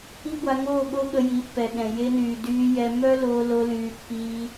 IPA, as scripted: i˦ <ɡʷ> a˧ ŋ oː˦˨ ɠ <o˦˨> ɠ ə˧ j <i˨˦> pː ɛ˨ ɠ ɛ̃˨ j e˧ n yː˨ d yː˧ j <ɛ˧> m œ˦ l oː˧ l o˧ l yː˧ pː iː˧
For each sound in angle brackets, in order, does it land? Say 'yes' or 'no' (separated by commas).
yes, no, yes, yes